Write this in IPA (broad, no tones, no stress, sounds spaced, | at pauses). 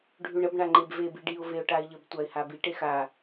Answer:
ɖʱ ʉ ɳ ə b ɳ a ŋ͡ǃ e b v e b i ɖ i ʊ̯ v e ʊ̯ ʈ a ɪ̯ ʎ ə b tʷ a ɪ̯ h a b i ʈ e x a